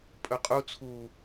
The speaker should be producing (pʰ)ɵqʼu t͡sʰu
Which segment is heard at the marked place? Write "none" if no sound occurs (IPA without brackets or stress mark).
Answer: pʼ